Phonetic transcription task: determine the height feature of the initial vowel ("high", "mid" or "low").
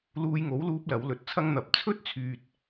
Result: high